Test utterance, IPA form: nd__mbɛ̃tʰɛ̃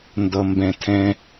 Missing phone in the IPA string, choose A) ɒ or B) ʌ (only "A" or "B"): B